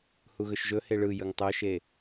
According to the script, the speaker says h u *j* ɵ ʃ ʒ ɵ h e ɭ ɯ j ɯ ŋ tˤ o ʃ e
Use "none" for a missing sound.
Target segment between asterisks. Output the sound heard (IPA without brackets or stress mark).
ɣ